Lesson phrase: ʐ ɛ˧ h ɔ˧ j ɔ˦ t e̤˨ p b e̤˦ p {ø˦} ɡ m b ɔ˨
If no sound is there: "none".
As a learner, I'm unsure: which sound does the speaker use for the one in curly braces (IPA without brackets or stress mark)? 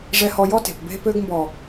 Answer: ø˦